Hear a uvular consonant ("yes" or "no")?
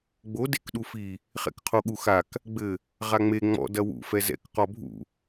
yes